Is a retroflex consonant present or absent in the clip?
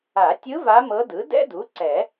absent